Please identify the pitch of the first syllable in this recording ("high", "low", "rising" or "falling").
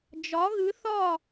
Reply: rising